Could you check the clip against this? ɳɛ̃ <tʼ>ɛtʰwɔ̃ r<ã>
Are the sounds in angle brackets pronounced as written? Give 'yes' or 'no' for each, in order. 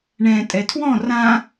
yes, yes

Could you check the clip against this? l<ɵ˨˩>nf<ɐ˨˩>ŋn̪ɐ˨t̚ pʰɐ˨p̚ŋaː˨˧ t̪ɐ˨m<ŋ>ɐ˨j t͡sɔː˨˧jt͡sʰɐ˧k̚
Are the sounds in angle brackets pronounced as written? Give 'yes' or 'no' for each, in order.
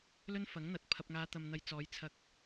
no, no, no

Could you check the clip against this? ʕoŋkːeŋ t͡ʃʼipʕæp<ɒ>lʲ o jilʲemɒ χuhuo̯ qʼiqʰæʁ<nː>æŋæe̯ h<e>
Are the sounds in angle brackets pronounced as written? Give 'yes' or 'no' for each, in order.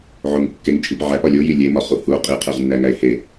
yes, yes, yes

